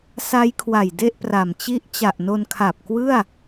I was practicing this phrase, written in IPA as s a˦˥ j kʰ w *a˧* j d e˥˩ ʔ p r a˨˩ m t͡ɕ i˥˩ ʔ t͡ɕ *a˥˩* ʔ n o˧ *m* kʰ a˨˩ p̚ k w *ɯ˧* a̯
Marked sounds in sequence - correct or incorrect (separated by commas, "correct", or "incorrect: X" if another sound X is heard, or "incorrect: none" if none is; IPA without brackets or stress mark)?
incorrect: a˨˩, incorrect: a˨˩, incorrect: n, incorrect: ɯ˥˩